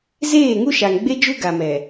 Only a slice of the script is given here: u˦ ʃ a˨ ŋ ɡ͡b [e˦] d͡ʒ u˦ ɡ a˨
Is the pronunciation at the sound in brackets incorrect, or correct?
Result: correct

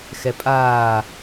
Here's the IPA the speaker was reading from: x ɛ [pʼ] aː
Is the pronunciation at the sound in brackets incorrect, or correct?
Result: correct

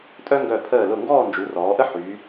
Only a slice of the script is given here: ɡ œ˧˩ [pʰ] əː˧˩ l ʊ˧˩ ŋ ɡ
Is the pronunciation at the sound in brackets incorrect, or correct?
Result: correct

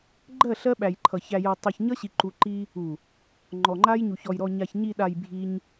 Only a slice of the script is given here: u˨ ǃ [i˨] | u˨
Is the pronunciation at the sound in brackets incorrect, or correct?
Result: incorrect: i˦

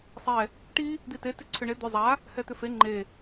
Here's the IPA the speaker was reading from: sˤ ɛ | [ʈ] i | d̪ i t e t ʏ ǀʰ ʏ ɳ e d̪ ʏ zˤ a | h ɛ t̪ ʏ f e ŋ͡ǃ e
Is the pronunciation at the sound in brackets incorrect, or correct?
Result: correct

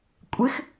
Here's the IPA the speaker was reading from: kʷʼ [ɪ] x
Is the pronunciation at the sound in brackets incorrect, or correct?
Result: correct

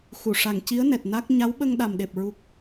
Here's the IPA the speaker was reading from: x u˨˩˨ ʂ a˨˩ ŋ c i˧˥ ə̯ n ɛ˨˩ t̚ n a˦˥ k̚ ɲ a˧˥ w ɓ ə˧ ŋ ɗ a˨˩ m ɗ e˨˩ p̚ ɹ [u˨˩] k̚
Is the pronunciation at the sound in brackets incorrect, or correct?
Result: correct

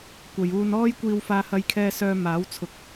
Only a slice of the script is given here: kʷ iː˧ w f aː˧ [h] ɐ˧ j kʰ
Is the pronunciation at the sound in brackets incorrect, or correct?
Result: correct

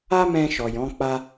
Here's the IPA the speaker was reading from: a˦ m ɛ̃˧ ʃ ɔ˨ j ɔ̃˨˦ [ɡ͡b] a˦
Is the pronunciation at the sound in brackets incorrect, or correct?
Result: incorrect: k͡p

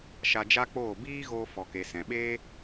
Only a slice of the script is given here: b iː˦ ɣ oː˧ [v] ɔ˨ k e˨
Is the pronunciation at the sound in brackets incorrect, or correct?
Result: incorrect: f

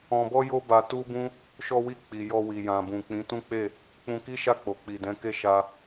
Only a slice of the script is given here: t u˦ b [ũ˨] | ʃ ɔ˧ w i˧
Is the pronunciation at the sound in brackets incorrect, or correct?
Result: incorrect: ũ˦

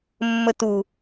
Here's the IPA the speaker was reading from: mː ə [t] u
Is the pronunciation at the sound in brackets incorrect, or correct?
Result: correct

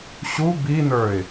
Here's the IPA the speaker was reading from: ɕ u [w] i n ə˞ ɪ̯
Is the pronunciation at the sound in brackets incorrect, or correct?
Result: incorrect: b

